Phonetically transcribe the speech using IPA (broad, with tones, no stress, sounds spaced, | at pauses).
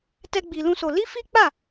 t ɛ˦ ɡ͡b i˧ l ũ˦ s o˧ l i˦ f i˦ k͡p a˦˨